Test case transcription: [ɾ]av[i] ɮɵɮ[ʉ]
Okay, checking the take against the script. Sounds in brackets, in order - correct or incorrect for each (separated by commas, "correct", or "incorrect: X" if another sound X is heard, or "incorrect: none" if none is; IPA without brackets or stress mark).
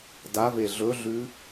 incorrect: d, incorrect: e, correct